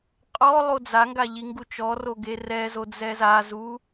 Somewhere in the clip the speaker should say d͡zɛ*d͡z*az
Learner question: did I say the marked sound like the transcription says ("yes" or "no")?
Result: no